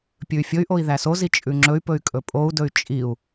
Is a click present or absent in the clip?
present